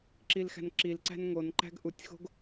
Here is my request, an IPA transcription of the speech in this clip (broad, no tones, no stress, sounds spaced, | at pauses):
ǁ i l x æ̤ n ǁ i l ǀ æ̤ n ŋ o n ǃ æ̤ ɡ ʔ u tʲ x o̤ ɡ